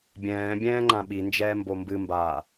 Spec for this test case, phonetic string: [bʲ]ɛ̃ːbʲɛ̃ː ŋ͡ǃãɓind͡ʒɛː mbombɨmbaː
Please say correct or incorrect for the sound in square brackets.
correct